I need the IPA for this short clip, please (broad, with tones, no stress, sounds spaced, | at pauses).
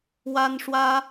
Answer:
w a˥ n ʂ w ä˥